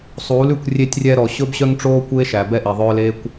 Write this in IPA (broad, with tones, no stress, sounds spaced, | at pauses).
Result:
sˤ uː˨˦ l ʉ˦˨ kʷ rʲ e˧ tʲ rʲ ɛ˧ ɾ ɔ˨ ɕ ɵ˦ b ɕ œ˦ ŋ ʈ͡ʂ oː˦ kʷ eː˦ ʃ æ˨ b ɛ˦ ʔ i˨ ðˤ œː˦ l eː˦ kʷ